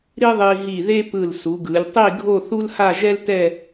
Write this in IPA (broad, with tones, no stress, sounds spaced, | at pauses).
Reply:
ɾ i˥ ðˤ i˧ ɦ i˧˩ ð e˥ p ɯ˧˩ l s u˩˧ ɡ ɯ˩˧ lʲ tˤ i˥˧ ɡʱ o˥˧ θ u˥ l h a˥˧ ʒ ɛ˥ l t ɛ˥˧